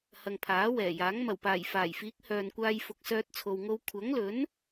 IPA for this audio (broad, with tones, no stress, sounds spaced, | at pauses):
h ɐ˨ ŋ pʰ aː˨˥ w ɛː˨˩ j aː˨˥ ŋ m ɐ˨˩ w p aː˨˩ j f aː˨˩ j f iː˨˥ k̚ h œː˨ n kʷ aː˧ j f ʊ˧ k̚ s œː˥ t̚ t͡sʰ o˧ w ŋ o˥ w kʷʰ ɐ˨˥ ŋ l ɵ˨˥ n